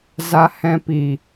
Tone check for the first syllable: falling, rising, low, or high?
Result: low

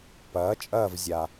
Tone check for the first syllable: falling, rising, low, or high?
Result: rising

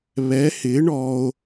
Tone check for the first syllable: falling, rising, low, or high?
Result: rising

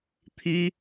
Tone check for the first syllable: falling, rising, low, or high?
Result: high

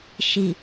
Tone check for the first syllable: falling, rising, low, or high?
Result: low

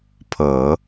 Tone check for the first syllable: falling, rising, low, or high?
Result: low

